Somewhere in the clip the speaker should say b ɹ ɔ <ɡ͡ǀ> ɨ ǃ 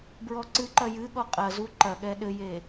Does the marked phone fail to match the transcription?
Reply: yes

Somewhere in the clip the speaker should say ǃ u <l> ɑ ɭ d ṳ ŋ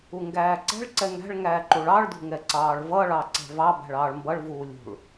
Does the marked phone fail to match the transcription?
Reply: yes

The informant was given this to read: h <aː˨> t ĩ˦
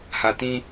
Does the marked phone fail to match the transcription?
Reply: yes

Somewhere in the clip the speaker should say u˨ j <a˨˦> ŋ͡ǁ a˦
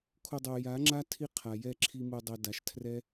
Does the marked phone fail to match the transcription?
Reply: no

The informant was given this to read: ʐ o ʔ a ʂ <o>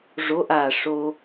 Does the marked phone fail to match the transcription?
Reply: no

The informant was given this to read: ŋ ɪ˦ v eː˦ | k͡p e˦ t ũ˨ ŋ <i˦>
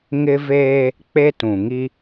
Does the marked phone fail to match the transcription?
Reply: no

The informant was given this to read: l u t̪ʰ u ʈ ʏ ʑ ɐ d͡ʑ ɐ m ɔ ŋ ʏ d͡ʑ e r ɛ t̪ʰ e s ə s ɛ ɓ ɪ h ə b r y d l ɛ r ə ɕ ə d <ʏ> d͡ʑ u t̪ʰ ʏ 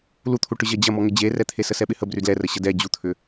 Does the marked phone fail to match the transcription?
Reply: yes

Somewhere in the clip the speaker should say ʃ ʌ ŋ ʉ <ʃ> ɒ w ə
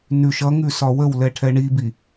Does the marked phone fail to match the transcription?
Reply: yes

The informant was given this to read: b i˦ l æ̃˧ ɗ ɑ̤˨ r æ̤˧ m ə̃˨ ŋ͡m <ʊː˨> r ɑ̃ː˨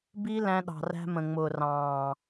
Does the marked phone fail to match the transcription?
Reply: no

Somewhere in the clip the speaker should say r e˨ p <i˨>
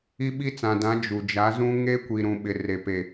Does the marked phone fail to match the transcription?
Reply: yes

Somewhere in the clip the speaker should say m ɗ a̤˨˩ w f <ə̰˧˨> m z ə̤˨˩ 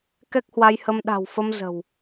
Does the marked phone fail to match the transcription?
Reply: yes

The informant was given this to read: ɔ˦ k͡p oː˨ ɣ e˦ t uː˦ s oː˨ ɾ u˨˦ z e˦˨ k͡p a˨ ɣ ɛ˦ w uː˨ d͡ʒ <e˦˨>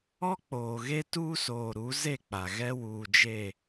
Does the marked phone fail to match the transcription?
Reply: no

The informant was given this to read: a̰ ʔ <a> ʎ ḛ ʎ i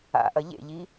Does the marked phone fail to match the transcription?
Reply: yes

